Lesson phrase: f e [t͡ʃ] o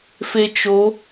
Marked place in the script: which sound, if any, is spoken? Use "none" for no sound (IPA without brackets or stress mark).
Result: t͡ʃ